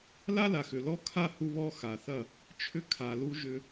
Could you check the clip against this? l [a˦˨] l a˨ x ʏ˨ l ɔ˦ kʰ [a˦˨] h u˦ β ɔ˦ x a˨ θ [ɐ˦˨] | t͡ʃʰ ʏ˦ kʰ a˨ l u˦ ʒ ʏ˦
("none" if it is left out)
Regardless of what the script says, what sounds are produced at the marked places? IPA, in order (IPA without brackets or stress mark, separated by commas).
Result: a˦, a˦˨, ɐ˦˨